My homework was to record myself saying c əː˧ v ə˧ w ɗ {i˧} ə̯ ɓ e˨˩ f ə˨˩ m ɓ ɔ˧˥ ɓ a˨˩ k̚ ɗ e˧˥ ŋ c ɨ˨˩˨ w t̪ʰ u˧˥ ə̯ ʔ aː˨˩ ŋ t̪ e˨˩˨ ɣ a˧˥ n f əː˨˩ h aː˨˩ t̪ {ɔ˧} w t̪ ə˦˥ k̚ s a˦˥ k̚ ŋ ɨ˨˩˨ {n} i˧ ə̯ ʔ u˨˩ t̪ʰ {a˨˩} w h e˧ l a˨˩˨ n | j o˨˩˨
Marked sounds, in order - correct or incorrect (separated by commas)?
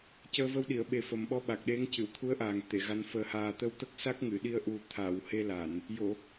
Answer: incorrect, incorrect, incorrect, incorrect